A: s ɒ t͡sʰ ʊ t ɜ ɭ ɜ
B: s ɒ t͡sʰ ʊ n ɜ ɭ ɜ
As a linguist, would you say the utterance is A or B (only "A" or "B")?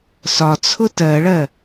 A